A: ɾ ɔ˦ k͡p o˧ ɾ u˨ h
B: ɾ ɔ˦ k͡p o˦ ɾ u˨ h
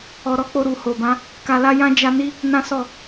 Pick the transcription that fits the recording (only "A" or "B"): A